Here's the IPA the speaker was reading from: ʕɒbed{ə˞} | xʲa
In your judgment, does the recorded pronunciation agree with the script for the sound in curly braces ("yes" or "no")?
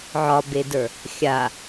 yes